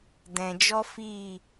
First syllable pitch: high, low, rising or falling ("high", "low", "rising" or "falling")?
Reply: low